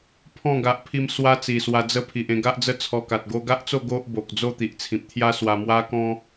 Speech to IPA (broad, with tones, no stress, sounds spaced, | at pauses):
pʰ ɔ̃˥˧ ɡ a˨ ʔ pʰ i˧ m s w a˦ t͡s i˨˩ s w a˧ d͡z ə˥˧ pʰ i˨ ʔ ẽ˧ ɡ a˦ ʔ d͡z ə˦ t͡sʰ ɔ˧ k a˨ t̚ ɡ o˧ ɡ a˦ ʔ t͡s o˥˧ ɡ o˦ ʔ b o˨ k̚ d͡z o˥˧ t̪ i˨ ʔ t͡sʰ ĩ˨ p̚ t̪ʰ j a˦ s w a˧ m w a˦ k ɔ̃˦